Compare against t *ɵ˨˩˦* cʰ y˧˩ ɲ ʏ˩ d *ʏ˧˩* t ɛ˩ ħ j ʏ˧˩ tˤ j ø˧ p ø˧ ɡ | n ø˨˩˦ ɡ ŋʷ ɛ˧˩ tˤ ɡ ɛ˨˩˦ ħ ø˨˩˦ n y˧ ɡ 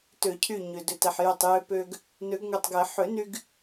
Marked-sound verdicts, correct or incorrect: incorrect: ø˨˩˦, incorrect: ʏ˩

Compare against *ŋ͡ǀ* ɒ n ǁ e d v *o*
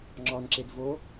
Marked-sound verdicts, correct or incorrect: incorrect: ŋ͡ǁ, correct

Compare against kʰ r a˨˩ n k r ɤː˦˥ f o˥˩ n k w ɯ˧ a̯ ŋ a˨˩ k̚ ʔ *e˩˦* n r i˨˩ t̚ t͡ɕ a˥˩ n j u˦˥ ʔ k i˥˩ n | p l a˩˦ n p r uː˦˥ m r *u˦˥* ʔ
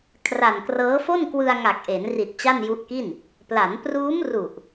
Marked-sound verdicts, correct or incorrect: correct, incorrect: u˨˩

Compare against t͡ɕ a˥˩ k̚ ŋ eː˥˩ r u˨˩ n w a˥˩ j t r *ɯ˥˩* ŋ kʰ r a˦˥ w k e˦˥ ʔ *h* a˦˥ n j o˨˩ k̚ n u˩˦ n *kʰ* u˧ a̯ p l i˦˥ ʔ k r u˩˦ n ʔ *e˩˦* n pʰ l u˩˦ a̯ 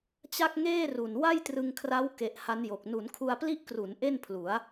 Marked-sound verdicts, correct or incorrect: incorrect: ɯ˧, correct, correct, incorrect: e˥˩

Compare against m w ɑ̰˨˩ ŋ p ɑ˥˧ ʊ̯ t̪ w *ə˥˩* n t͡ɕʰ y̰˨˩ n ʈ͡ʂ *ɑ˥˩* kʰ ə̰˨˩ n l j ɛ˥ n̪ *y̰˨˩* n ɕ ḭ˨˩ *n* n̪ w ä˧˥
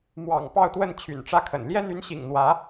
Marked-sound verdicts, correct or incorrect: correct, incorrect: ä˥˩, incorrect: y˧˥, incorrect: ŋ

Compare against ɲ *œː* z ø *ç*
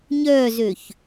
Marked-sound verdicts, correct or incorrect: correct, correct

